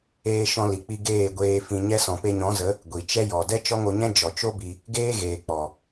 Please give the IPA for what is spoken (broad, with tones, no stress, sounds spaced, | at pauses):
eː˦ ʃ ɔ̃˧ l i˨ k͡p i˧ ɡ eː˦˨ ɡʷ eː˧ f ĩ˧ ɲ ɛ˦ s ɔ̃˨ p e˧ ɲ ɔ̃˨˦ z ə˨˦ | ɡʷ i˨ t͡ʃ ɛ˦ j ɔ˨ d ɛ˦ t͡ʃ ɔ˦ ŋ o˧ ɲ ɛ̃˦ d͡ʒ ɔ˨ t͡ʃ o˦ b i˧ | ɡ eː˦ ɣ eː˨ k͡p ɔ˨